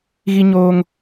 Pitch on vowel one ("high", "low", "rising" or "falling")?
high